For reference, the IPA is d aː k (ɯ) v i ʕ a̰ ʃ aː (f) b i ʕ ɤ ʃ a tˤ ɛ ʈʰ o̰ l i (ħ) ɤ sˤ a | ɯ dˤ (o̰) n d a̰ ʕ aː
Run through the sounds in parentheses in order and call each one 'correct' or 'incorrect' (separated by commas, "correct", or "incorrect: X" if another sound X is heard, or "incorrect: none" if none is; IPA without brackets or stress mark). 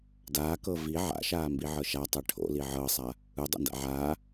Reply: incorrect: ɤ, incorrect: m, incorrect: ʕ, correct